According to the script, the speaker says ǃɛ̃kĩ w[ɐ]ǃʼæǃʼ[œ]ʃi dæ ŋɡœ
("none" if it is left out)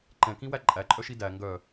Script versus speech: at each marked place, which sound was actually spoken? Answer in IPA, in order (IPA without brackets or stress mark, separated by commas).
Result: æ, œ